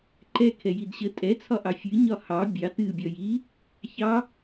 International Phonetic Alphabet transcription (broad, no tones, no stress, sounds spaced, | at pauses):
ǃ ɛ kʰ ɛ j i d ɕ ə tʼ ɛ t͡sʰ ɒ ʔ ɑ fʲ ɨ ɲ ɒ h ɑ bʲ ɑ t ɨ bʲ ɒ j i | ç ɑ